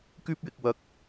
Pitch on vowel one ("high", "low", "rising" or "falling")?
high